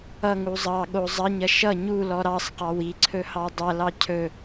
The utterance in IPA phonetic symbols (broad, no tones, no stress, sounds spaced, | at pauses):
ʌ ŋ u zˤ ɑ ɠ o zˤ ɐ ɲ ɐ ʃ ʌ ɲ u l ɔ ɾ ɑ sˤ q ɑ w i ǀʰ ɵ h ɑ dˤ ɐ l ɑ cʰ ɵ